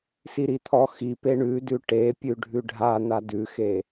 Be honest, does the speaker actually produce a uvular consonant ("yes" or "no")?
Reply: no